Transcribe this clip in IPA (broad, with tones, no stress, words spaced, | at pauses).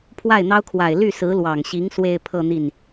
pʰwa˥˩ɪ̯n̪ɑ˥ʊ̯kʰwa˨˩ɪ̯ ly˥˩sɹ̩˧˥lwɑ˨˩ŋɕi˧˥ŋ swe˥˧ɪ̯pʰɤ˥˧ n̪i˥˩n